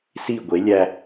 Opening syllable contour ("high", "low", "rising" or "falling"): falling